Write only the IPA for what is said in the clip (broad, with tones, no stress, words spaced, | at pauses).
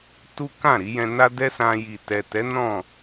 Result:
tu˦kã˦˨ ɾi˨˦jɛ̃˧ na˦dɛ˦sã˧ji˨ tɛ˨tɛ˨˦ nɔ̃˦˨